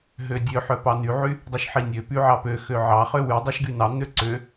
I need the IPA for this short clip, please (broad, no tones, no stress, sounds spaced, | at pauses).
ɦ ø dʲ ø ħ œ p ɑ n y ʕ y | dˤ ø ʃ ħ i nʲ ø p y ʕ ɑ p ø x ø ʕ ɑ χ ø w y dˤ ɛ ʃ ɡ y n ɑ n̪ ø ǀ ø